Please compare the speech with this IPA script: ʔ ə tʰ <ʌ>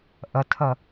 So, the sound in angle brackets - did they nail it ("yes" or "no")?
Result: no